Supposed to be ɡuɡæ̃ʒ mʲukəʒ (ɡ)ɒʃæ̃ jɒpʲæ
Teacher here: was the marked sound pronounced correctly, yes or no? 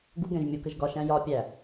yes